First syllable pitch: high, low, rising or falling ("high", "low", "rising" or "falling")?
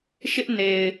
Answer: high